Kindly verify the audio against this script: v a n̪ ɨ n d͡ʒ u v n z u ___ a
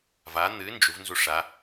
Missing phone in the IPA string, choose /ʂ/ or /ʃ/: ʂ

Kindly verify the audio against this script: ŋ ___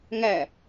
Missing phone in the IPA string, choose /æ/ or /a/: æ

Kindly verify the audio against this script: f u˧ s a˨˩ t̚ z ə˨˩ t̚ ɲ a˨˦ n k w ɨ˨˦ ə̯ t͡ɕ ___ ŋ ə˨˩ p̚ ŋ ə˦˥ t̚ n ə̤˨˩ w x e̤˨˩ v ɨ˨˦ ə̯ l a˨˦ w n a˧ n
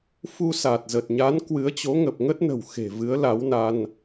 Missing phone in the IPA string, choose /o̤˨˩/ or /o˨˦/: o˨˦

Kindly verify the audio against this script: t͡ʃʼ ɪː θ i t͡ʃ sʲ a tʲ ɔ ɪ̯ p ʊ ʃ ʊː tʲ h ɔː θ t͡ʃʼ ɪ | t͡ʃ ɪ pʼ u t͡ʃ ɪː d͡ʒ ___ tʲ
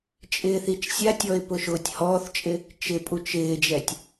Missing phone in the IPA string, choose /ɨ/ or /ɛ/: ɛ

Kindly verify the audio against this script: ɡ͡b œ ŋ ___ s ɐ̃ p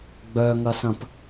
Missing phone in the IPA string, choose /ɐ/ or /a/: ɐ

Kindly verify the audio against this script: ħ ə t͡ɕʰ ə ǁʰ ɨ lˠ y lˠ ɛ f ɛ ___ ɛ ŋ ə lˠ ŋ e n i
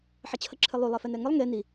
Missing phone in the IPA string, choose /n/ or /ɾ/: n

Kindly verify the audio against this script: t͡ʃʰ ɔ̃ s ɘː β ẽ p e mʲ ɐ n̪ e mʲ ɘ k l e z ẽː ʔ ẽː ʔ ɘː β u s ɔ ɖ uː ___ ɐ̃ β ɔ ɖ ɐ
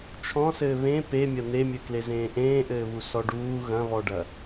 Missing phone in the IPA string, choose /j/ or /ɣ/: ɣ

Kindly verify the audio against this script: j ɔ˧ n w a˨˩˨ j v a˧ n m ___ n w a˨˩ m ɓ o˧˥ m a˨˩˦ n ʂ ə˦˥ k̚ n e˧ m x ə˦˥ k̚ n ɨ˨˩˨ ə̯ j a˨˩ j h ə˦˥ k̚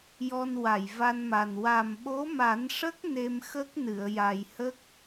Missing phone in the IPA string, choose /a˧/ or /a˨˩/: a˨˩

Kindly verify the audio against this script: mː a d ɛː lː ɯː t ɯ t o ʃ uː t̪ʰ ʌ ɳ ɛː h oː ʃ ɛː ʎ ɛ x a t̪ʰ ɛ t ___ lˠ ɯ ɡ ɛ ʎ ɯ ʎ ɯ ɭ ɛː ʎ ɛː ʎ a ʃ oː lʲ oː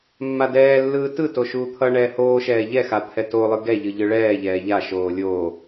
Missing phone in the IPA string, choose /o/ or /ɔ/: o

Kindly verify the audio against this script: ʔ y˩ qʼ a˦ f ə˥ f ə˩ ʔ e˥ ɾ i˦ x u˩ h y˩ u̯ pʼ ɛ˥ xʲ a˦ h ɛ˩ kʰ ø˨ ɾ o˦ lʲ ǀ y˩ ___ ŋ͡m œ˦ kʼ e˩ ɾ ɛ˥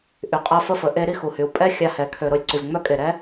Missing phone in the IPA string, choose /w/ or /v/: v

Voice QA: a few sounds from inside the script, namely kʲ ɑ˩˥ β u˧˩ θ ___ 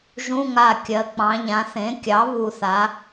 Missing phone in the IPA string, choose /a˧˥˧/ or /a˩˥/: a˩˥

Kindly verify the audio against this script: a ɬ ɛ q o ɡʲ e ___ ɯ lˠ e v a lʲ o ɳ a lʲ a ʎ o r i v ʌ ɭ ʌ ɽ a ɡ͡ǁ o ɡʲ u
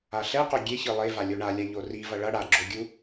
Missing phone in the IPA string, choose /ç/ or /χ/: ç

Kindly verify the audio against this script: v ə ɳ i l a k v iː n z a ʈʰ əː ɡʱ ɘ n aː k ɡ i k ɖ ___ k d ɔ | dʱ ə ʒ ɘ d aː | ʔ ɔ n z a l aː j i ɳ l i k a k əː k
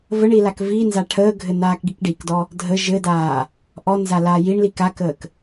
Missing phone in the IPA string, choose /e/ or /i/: i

